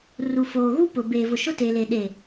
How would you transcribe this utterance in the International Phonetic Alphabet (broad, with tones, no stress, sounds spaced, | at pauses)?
r u˨ f oː˨ ɣ u˦ p ʊ˨ b eː˨ v ʊ˨ ʃ ʊ˦ t e˨ l e˨ ɗ e˨